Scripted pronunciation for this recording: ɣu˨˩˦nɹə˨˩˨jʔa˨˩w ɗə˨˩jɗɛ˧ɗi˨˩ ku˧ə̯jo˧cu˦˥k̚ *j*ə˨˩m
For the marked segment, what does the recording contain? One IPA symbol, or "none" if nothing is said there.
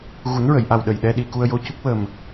w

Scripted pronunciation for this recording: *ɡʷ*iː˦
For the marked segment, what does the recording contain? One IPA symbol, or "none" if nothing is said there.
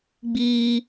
ɡ͡b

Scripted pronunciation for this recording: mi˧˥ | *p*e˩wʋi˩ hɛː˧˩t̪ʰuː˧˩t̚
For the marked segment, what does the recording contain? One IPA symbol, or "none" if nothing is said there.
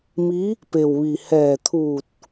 p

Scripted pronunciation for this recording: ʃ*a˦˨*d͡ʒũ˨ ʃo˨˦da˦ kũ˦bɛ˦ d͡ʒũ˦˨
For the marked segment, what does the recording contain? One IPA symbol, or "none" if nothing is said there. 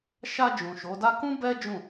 a˧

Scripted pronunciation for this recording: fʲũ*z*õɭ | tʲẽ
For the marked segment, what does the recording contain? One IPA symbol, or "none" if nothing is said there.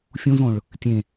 z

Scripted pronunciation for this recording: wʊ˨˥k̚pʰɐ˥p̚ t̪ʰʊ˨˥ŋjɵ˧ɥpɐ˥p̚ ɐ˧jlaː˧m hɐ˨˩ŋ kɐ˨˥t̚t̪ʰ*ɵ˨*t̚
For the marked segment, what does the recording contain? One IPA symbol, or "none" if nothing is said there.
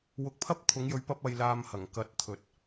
ɵ˨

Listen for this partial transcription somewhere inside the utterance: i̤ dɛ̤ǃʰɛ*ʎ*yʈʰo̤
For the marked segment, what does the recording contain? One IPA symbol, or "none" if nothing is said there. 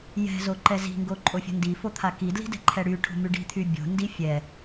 ɽ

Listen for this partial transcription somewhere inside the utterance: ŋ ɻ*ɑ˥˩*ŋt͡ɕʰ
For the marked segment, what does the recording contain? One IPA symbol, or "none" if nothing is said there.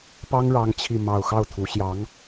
ɑ˥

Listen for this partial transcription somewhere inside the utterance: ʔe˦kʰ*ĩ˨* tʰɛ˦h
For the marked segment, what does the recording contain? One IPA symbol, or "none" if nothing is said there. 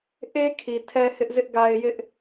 i˨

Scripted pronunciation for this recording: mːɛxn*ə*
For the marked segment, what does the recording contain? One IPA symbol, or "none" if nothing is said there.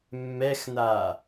a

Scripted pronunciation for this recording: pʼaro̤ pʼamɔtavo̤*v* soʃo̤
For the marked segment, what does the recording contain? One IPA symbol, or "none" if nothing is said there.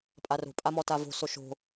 none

